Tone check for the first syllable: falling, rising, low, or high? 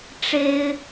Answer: high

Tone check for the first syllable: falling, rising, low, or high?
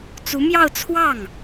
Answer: rising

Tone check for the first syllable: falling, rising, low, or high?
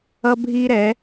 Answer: high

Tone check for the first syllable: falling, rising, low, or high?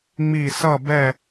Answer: falling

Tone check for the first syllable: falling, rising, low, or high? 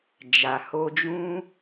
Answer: low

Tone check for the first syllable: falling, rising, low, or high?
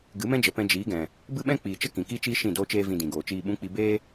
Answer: rising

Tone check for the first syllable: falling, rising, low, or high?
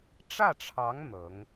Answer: falling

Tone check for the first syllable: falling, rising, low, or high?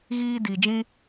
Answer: high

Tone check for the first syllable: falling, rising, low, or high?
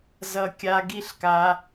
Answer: high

